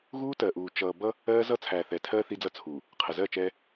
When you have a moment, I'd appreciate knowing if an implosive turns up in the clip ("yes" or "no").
no